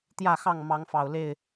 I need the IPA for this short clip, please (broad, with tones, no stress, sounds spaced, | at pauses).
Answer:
t̪ j ä˥˨ x ɑ˥˨ ŋ m ɑ˨˦ ŋ f ɑ˨˩ ʊ̯ l e˥˨ ɪ̯